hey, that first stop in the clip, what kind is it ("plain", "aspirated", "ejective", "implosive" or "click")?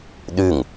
implosive